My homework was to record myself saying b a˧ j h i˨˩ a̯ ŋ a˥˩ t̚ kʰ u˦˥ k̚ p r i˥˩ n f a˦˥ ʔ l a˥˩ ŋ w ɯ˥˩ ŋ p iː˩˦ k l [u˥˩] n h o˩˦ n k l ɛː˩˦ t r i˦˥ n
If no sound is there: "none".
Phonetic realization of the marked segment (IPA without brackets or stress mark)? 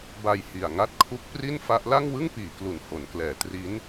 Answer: u˨˩